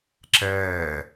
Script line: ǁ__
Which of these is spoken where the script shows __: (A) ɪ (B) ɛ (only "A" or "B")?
B